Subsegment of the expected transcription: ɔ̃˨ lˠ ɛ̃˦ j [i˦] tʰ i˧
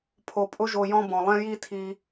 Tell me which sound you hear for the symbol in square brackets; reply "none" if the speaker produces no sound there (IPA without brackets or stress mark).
i˦